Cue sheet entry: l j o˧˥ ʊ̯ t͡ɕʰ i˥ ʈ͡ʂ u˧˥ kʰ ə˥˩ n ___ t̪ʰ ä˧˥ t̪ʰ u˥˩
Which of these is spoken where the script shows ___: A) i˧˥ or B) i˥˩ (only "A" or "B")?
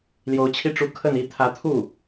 A